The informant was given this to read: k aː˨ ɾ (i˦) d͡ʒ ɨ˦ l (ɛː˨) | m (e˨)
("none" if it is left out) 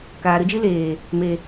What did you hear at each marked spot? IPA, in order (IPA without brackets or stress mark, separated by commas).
ɨ˦, eː˨, e˨